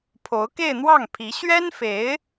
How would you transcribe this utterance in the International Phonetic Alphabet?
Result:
pʰ o˧˥ ʊ̯ k e˥˧ ɪ̯ n̪ w ɑ˥˩ ŋ pʰ i˧˥ ɕ ɥ ɛ˥ n f e˧˥ ɪ̯

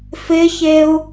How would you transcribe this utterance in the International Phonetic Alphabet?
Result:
f ɪ ç e u̯

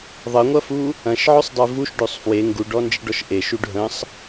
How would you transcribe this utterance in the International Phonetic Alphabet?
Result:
ðˤ ə ŋʷ ɐ f u | ɐ̃ ʃ ʕ ø sˤ dˤ e v u ʃ ɖ ø sˤ f w e ŋ ɡ u ɖ ɔ n d͡ʒ ə ɖ ɔ ʃ ʔ e ʃ u ɖ ɦ ə̃ sˤ

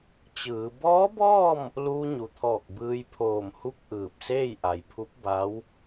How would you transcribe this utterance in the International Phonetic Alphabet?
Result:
t͡ɕ ɯː˩˧ b ɔː˧˥ b ɔː˥˨ m | l uː˧ ɲ u˩ t̪ʰ ɔː˧˩ k̚ b ɯː˧ j pʰ oː˧˩ m h u˥˨ k̚ ʔ ɯː˧˩ p̚ s eː˥˨ j ʔ a˩ j pʰ u˧˥ p̚ b a˧˥ w

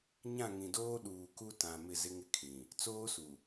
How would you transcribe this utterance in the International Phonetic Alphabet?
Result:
ɲ ã˦˨ ŋ ĩ˨ d oː˦ ɗ uː˨ k u˦ t ã˨ m ɪ˦˨ z ɪ˦ ŋ ɪ˦ kʰ ĩ˨ | t͡s oː˦ s u˨

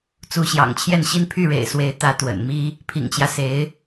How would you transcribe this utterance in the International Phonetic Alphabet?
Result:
t͡s u˧˥ ɕ j ɑ̰˨˩ ŋ t͡ɕʰ j ɛ˥˩ n ɕ i˥ n pʰ y˥˩ ɻ ḛ˨˩ ɪ̯ s w e˧˥ ɪ̯ t̪ ä˧˥ t̪ w ə̰˨˩ n m i˥ | pʰ ḭ˨˩ ŋ t͡ɕ j ä˦ s e˧˥ ɪ̯

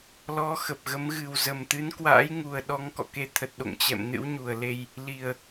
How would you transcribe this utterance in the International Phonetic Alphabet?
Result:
l ɔ˨˦ x ə˨˩ p̚ ɣ ə˨˦ m ɣ ɨ˨˩ w z ə˨˩ m t̪ ɨ˨˦ n k w a̰ː˧˥ j ŋ u˨˩ ə̯ ɗ ɔ˨˦ ŋ k ɔ̰˧˨ k e˨˦ t̪ʰ ə˨˩ t̚ ɗ o̰˧˨ ŋ t͡ɕ ɛ̰˧˨ m n ɨ̰˧˥ w ɲ u˨˩ ə̯ l e˧ j | l i˨˩ ə̯

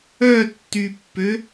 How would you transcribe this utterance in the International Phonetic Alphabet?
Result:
œ tː y pː ø

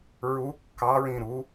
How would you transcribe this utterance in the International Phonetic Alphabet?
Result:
ɹ u kː ɑ ɹ ĩ ɾ u

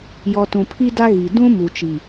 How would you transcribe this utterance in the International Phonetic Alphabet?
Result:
j ɔ˨ t ũ˨ pʰ i˦ d a˦ ɣ i˨ d ũ˦ m u˨ t͡ʃ i˨

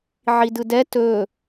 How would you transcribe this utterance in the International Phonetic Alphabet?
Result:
ʕ i d ɯ d ɛ t ɵ

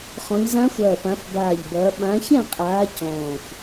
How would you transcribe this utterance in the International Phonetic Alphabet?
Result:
χ ɔ̃˨˦ ʎ z ã˦˥ xʷ ɐː˧˩ p ã˨˦ f b aː˧˩ ʎ b ɐː˨˦ ɓ ã˨˦ ç ɛ̃˥˨ qʼ aː˨˦ c ɔ̃ː˧˩ xʷ

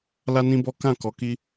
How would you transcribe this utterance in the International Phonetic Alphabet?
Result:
l a˦ n ĩ˦ b ɔ˦ k ã˦˨ k ɔ˧ k i˦

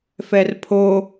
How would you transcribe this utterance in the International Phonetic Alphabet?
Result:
f ɛ r pʰ o

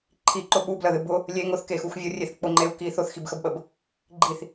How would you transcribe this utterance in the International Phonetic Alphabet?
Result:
ǃʰ i ǃ ʊ ɓ u b l ə ð ɨ b ʊ | lʲ e ŋ ʊ θ k e x u x vʲ ʊ rʲ e θ k͡p ʊ ŋ͡ǃ e u̯ k i θ ʊ θ x i b x ə b ɓ ə b | ɡ͡ǃ i θ

